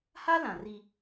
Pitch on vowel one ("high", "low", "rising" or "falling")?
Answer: high